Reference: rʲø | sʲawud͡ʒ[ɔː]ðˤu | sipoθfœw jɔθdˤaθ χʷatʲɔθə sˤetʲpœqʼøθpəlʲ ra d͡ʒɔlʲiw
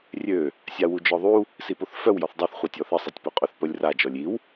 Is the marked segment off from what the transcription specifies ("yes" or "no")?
yes